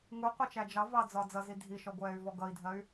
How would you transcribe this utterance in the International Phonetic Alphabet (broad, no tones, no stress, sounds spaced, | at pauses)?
ŋ u qʷ ʌ t͡ʃ æ d͡ʒ ɑ v ɑ d͡z ɒ d͡z ʌ z i dʱ i ʃ ɔ ɡʷ ɛː y̯ v ɔ ɡ ʌ i̯ dʱ ɜ y̯